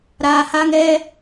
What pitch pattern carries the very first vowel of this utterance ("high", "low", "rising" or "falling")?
low